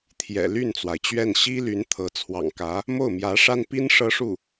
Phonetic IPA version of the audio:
t̪ʰ j ɛ̰˨˩ l y˥˩ n t͡s w a˩ ɪ̯ t͡ɕ ɥ ɛ˥˩ n ɕ i˥ l y˧˥ n t̪ʰ ɤ˧˥ t͡sʰ w ɑ̰˨˩ ŋ k ä˧˥ | m o˥˩ ʊ̯ m j ä˧˥ ʂ a˥ n p i˥ n ʂ ɤ˥ ʂ u˥˩

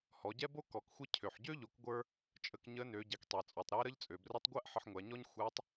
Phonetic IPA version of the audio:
h ɔ˩˧ ɟ ɛ˥ b o˥ k ɔ˩˧ k xʷ ɪ˥ cʰ ø˩ ħ ɟ ø˥ ʎ o˩˧ k ɡʷ ə˞˧ | t͡ʃʼ ə˧ k ɲ ə˧˥ n ø˩˧ ɟ ɛ˩˧ k tˤ ɛ˩ t͡sʼ ɔ˩ tˤ ɾ ɛ˧˥ ɾ ə˧˥ ʎ t͡sʼ ø˩ b r ə˧˥ tˤ ɡʷ æ˥ ʔ ħ ə˧ ħ ŋʷ æ˩˧ ɲ ɔ˥ ɲ xʷ æ˧˥ tˤ

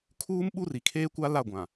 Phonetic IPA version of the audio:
kʰ uː˦ m ɓ u˦ r i˨ kʰ eː˦ kʷ a˦ l a˦˨ ɡʷ ã˨

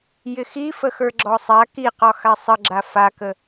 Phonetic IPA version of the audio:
j ɪ x i f ə x ə˞ ɡ͡ǁ ɔ sˤ a k i q ɒ x a sˤ ə ɡ͡ǁ a f a k ə

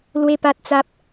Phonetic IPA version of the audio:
l w e˦ p a˦ t̚ t͡s a˦ p̚

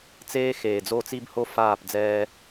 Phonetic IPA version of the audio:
t͡s eː˦ x eː˨ d͡z o˦˨ t͡s i˦ b h o˦ f aː˦˨ p d͡z ɛː˦

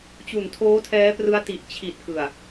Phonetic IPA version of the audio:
t͡ɕ u˨˩ n tʰ oː˦˥ tʰ ɛː˦˥ p r ɯ˦˥ a̯ t i˨˩ ʔ t͡ɕʰ i˨˩ t̚ k ɯ˨˩ a̯

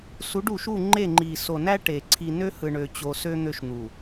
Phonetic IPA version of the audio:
s u˨˦ ɖ u˨ ʃ u˦˨ ŋ͡ǃ e˦˨ ŋ͡ǃ i˨ s o˨ n æ˦ ʈ e˨ ǀʰ i˨ n ø˦ h ɯ˨ ɳ ø˦ t͡ɕ o˦ s ø˦ n̪ ø˦ ʃ n̪ u˨

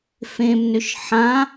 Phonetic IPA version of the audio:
f ẽ m n ʏ ʃ ħ ã

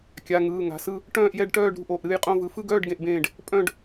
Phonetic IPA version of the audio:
kʲ a˩˧˩ ŋ ɯː˩˧˩ ŋ a̤˩˧˩ s ɯ˥˨ | ʈ œ̃ː˥˨ ʔ j ɛ˥˨ ɖ ʈ œː˥˨ ɖ ɾ ṳ˥˨ ʔ o˩˧˩ ʔ ɾ ɨː˥˨ j qʼ õ˥˨ v ɯ˩˧˩ f ɯ˥˨ ɡ œː˥˨ ɖ ɡ ẽ˥˨ ʔ b ẽː˥˨ ɖ | pʼ œ̃˥˨ ɖ

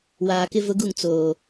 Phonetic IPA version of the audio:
w aː˨ k ɪ˦ v ʊ˦ ɡ u˦˨ ŋ t͡s oː˨

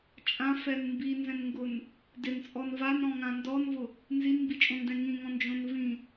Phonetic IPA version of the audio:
t͡ʃʼ ã f ɛ n m b i n z ɛ̃ n ŋ ɡ ʊ n | d ɪ n t͡sʼ ɔ n v a n ɾ ɔ̃ ŋ ã n d ɔ n v ʊ | n z i n m b i t͡ʃʼ õ n d ɛ̃ ŋ ĩ ŋ ɔ̃ n d͡ʒ õ n v ĩ

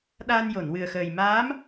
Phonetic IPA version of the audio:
ɗ aː˧ n j o˨˩˨ n w ɨ˨˩ ə̯ x əː˨˩ j m aː˧˥ m

